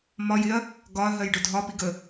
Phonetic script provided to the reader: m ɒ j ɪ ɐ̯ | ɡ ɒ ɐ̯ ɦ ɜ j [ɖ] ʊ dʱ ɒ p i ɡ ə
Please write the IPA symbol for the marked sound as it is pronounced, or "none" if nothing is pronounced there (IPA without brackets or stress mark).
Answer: ɖ